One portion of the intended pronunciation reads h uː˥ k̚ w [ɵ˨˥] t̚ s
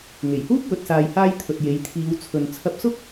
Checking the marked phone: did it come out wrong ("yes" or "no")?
yes